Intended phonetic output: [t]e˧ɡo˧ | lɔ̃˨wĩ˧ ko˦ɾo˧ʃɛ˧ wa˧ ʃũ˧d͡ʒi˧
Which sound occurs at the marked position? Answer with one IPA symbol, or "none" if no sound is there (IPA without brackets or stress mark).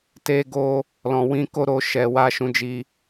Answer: t